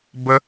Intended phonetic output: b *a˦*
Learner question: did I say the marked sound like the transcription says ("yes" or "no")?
no